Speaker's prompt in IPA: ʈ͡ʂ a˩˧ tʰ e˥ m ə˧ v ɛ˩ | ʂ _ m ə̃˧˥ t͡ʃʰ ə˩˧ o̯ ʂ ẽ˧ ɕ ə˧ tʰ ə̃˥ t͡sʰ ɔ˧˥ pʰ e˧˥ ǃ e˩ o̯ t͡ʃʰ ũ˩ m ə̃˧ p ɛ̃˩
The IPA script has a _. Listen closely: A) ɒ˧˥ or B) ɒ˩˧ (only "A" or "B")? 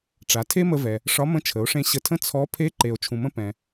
A